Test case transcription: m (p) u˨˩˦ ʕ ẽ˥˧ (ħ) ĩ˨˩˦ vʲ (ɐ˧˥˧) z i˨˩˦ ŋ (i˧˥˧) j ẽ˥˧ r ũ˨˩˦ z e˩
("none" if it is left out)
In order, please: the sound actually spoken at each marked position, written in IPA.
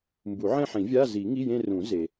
b, ħ, a˧˥˧, i˧˥˧

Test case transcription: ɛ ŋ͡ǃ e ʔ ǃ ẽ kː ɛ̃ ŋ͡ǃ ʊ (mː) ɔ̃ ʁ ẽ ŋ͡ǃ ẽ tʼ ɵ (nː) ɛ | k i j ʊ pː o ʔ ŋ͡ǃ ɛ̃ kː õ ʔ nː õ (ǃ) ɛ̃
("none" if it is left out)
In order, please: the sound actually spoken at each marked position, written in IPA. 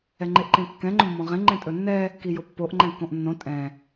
mː, nː, tʼ

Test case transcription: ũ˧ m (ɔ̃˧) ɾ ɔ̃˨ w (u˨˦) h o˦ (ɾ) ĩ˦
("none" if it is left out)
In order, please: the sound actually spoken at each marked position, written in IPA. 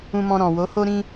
ɔ̃˧, o˨˦, ɾ

